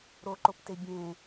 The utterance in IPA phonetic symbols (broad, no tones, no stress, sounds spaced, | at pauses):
ɾ o ǃ o p t e bʲ ẽ